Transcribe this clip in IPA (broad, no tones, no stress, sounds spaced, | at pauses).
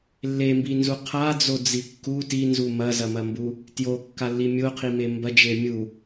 lː e m b i n z u qʰ a d͡z o d͡z i kː u t i n z u m ɐ z ɐ m ɐ m b u | t j o kː a lː i mʲ o qʰ i m e m b ɐ d͡ʒ e mʲ u